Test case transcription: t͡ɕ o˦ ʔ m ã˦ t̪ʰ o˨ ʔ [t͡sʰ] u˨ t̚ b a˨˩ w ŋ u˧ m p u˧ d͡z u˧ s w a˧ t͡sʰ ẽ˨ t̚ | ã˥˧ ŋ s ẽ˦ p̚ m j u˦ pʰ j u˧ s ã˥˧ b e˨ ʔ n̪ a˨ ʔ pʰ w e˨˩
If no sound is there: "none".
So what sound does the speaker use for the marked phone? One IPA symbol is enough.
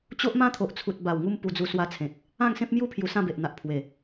t͡sʰ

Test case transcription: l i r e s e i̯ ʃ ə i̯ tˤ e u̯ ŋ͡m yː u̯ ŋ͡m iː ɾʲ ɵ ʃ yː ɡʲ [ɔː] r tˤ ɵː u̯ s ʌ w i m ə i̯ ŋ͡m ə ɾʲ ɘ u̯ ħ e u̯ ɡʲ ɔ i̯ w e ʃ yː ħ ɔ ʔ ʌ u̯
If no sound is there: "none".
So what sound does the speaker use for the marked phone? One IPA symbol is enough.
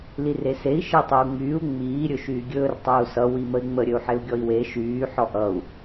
ɵː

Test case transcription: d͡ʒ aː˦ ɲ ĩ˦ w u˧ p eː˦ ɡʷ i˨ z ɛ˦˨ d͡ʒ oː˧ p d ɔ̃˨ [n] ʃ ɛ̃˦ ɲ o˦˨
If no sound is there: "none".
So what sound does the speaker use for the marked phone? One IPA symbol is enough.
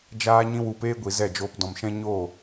m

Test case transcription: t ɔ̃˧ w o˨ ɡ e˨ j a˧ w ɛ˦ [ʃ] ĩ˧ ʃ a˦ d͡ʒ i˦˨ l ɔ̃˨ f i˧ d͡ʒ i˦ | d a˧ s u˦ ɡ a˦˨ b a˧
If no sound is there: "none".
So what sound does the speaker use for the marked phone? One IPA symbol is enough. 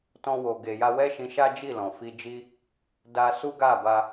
ʃ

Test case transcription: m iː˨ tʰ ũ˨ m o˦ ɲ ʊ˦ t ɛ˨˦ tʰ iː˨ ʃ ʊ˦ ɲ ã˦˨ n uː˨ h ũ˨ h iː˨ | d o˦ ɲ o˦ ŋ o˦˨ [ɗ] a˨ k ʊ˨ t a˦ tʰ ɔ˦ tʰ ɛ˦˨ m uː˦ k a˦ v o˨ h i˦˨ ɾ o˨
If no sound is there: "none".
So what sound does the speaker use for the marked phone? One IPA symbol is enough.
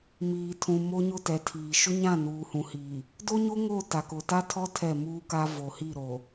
t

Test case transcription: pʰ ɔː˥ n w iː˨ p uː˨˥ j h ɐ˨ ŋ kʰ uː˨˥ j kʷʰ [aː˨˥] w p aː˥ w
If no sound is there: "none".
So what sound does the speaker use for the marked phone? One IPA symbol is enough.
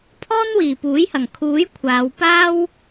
aː˨˧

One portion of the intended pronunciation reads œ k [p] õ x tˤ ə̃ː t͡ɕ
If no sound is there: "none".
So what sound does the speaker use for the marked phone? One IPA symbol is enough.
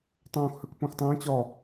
p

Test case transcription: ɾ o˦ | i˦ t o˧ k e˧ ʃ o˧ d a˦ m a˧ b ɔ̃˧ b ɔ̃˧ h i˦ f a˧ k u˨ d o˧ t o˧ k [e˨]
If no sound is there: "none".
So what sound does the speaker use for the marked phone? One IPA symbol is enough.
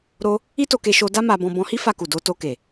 e˨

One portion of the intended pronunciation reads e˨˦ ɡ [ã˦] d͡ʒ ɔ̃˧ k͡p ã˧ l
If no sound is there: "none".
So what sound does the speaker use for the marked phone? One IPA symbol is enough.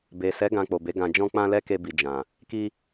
ã˧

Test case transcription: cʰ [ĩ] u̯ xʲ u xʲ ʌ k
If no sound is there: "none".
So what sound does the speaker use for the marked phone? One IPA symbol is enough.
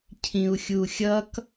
ĩ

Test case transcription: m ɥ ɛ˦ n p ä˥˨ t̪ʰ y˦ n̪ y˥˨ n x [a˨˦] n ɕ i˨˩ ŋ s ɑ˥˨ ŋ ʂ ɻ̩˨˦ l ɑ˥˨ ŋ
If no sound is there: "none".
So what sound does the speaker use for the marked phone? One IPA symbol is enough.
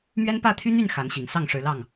a˨˦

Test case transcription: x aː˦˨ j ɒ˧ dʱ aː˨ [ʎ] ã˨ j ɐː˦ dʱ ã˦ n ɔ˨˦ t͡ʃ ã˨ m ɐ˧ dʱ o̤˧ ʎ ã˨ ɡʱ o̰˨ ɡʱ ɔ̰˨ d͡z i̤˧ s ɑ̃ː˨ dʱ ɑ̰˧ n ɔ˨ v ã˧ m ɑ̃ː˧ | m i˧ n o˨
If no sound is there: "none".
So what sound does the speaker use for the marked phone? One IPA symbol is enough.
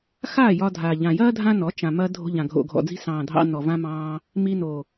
ʎ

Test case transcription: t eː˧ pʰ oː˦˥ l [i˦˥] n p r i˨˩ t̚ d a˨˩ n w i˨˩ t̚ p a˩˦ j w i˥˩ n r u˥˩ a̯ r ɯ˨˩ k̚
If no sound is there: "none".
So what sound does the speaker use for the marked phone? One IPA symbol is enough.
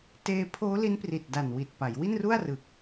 i˦˥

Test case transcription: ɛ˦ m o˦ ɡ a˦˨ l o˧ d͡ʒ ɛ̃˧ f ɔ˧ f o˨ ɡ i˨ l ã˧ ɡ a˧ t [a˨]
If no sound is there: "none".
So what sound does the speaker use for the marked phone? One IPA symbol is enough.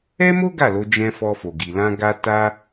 a˦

